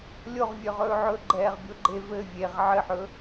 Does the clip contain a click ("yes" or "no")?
yes